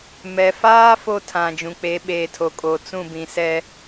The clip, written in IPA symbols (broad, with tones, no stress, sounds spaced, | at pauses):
m ɛ˨ f aː˦ f o˦ tʰ ã˨ d͡ʒ ũ˨ k͡p e˨˦ ɓ eː˨ tʰ o˨ kʼ o˨ t͡s ũ˦˨ b ĩ˨ s ɛ˦